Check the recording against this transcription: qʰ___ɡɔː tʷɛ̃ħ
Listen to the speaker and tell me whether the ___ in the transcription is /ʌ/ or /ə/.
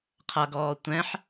ʌ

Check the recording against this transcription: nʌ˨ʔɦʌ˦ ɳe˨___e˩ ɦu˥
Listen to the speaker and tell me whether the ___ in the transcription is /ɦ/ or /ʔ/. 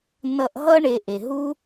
ʔ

